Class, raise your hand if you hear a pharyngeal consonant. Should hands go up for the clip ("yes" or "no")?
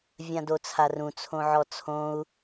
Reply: yes